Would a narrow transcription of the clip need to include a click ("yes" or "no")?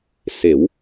no